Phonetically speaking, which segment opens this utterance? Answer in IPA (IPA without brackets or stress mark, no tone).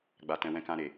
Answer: ɡ͡b